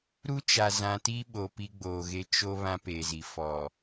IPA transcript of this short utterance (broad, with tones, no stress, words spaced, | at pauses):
ɾu˦t͡ʃa˨ zã˨ti˦ ɓo˨pi˦ɡ͡boː˨ɣe˦ t͡ʃo˦ βã˦peː˨zi˨ fɔ˨